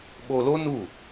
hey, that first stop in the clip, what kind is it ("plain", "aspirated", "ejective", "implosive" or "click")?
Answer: implosive